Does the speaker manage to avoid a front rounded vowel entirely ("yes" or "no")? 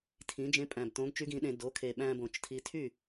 no